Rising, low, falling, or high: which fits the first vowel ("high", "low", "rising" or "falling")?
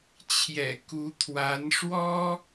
low